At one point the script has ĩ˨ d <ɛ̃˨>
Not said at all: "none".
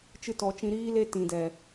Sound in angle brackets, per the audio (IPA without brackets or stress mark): ɛ˨